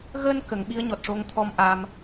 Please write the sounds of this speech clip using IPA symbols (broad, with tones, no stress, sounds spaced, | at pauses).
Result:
ɣ əː˧ n k ə˨˩˦ ŋ ɓ i˧˥ ə̯ ɲ ɔ˨˩ t̚ ʂ o˧ ŋ t̪ʰ ɔ˧ m ʔ a˧ m